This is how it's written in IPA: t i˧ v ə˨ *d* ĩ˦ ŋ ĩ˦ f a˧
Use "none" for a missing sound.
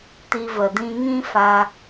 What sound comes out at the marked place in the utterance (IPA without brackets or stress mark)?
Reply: d